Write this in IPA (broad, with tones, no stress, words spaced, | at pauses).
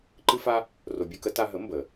ǃɨ˥fa˥ | ro˧bʲu˥kə˩˥ ta˧ɦə˩˥ mbə˩